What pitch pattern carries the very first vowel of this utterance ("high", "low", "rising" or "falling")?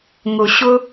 low